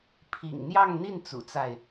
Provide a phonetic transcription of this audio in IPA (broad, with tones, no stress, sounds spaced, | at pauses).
pʰ ḭ˨˩ ŋ n̪ j ɑ˥˧ ŋ n̪ i˥˩ n t͡s ṵ˨˩ t͡s a˥˩ ɪ̯